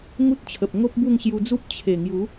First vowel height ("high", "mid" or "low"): high